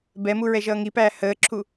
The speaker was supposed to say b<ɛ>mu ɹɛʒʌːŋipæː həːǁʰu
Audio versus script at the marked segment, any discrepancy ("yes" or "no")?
no